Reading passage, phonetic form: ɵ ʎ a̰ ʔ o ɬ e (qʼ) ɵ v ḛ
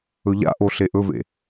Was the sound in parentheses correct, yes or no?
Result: no